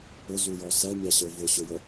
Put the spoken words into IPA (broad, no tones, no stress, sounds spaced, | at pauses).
ʊ z u j ɔ s ɛ mʲ ɑ ɕ ə˞ v ʊ ɕ ʊ j ə